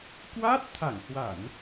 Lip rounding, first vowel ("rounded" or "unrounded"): unrounded